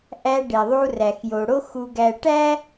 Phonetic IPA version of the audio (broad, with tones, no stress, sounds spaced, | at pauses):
ʔ æ˧ ɖ e˨ ðˤ u˧ r æ˨ x j o˨ ɽ o˦ x u˧ ɡ æ˧ ʈ æ˦